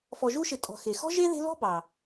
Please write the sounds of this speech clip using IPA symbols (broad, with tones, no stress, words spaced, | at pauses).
fɔ˨ʒu˦ʃɪ˨ tʼɔ̤˨xe˩ xɔ̤˥ʒe˥ðe̤˦lɔ̤˥ bɑ˩